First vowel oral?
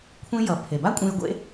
no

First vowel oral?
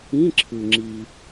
no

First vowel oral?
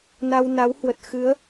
yes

